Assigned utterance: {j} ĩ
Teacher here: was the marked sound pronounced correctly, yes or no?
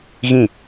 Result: no